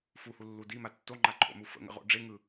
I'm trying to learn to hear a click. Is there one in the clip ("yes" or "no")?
yes